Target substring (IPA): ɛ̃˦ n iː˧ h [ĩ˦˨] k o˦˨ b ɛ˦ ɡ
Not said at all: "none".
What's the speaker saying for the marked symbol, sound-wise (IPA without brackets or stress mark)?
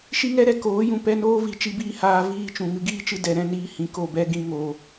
ĩ˨